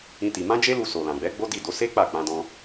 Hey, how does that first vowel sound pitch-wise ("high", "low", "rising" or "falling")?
high